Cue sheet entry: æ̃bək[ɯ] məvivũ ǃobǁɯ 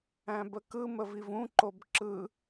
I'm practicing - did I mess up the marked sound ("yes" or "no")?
no